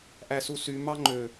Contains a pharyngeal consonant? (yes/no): no